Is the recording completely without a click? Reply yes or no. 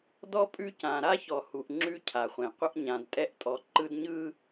no